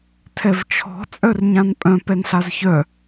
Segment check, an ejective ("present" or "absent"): present